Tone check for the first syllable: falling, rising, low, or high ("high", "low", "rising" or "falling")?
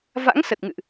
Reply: rising